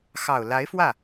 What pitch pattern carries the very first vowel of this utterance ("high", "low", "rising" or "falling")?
low